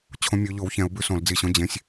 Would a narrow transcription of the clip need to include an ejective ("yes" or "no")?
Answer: no